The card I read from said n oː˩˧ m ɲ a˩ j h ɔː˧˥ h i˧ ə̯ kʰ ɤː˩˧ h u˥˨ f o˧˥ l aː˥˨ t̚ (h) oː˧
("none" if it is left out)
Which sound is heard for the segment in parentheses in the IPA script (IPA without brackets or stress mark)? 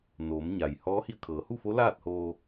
h